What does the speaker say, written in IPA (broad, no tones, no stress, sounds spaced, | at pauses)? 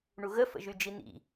ɳ u ɣ ə f ə̰ ʒ y d͡ʒ i n̪ ḭ